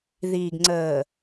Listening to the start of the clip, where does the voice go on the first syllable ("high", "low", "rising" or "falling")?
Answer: low